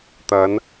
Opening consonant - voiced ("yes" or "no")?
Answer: no